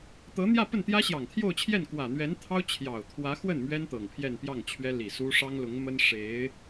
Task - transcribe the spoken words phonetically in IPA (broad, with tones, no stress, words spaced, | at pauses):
t̪ɤ˧˥n̪jä˥˧pə˥˩n t̪jä˥ɕjɑ˨˩ŋt̪ʰjo˥˧ʊ̯t͡ɕʰjɛ˥˩n kwä˨˩n̪ɥɛ˧˥nt̪ʰɑ˥ʊ̯ t͡ɕʰjɑ˨˩ʊ̯t̪ʰwä˧˥ xwə˥˩n mɥɛ˥n t̪ɤ˨˩ŋpʰjɛ˥˧npjɑ˥˩ŋt͡ɕʰɥɛ˥ li˨˩su˥ ʂɑ˥ŋlʊ˧˥ŋmə˥n ʂe˧˥ɪ̯